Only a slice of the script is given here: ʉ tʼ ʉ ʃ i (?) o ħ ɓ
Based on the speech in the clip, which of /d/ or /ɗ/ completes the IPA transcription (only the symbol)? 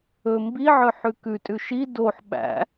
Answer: d